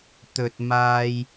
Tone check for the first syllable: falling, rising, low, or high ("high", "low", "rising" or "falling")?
low